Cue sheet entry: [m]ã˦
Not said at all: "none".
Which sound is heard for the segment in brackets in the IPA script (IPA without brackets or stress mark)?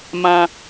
m